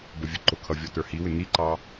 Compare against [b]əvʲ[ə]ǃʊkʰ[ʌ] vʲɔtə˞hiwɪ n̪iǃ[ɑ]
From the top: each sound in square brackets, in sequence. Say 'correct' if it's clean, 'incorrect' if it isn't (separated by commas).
correct, correct, correct, correct